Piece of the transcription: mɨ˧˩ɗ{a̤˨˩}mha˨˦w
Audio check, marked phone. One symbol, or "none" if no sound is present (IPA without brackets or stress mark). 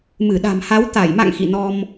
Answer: a̤˨˩